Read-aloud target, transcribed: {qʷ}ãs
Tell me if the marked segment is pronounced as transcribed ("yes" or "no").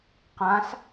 no